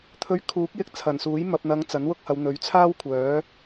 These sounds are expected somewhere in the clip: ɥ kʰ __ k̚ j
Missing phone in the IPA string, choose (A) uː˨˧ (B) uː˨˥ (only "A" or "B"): B